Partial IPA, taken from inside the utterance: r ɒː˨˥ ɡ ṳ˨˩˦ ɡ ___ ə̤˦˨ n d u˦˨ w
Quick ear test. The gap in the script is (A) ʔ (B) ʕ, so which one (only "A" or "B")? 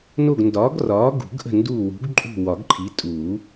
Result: A